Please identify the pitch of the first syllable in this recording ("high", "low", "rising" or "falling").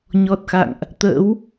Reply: low